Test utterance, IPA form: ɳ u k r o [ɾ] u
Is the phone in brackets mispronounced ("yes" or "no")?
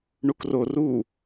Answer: yes